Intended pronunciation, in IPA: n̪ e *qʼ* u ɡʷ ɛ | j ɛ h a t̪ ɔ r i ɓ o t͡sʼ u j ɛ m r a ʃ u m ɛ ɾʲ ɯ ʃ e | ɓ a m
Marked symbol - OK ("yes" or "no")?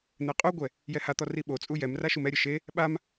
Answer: yes